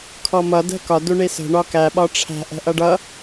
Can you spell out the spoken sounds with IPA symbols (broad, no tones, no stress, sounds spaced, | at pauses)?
kʰ ɔ m ʌ d ɛ̤ k ɒ d u ɳ i s ə̤ ɳ ɒ k æ ɓ ɒ ʈ͡ʂʰ æ̤ ʔ ɛ̤ ʔ ʌ ɖ ʌ